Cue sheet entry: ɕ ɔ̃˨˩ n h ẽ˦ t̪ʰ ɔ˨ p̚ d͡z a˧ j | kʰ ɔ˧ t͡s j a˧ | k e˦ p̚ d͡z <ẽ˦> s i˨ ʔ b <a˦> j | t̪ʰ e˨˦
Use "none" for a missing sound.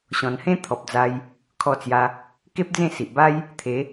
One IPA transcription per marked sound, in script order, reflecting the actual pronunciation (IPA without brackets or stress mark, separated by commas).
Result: ẽ˥˧, a˦